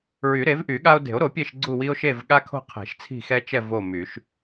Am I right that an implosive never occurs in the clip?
no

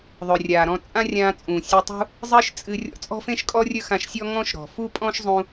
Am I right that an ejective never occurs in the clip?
no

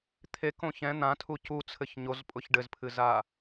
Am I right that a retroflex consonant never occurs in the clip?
no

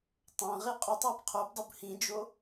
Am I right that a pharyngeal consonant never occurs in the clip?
yes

